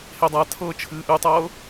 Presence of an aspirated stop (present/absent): present